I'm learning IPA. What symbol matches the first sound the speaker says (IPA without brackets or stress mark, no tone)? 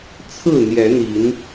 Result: t͡sʰ